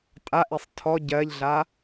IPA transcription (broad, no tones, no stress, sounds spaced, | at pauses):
tʼ a ʔ e sˤ tʰ ɔ ɟ ɜ ʎ ɮ a